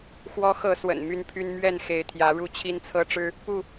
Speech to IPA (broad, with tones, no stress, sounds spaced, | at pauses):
x w ɔ˨˦ x ɤ˨˦ s w ə̰˨˩ n m y˦ n pʰ y˦ n m ɥ ɛ˥˨ n x e˨˦ ɪ̯ t̪ʰ j ä˨˦ ɻ u˥˨ t͡ɕʰ i˦ n t͡sʰ ɤ˦ ʈ͡ʂ ɻ̩˦ | p u˥˨